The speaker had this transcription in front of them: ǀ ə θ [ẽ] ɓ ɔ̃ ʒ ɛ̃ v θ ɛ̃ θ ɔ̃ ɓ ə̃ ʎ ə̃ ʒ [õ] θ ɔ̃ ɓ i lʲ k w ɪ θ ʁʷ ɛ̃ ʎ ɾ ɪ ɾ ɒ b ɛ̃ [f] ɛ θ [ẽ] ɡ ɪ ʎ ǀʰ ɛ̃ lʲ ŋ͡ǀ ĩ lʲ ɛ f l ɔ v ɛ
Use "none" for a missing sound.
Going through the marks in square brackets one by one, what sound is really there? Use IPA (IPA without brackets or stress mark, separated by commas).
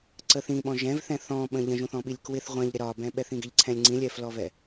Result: ĩ, ũ, ɓ, ĩ